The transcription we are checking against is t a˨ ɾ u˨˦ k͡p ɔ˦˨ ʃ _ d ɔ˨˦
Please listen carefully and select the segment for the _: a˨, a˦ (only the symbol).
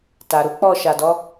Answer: a˨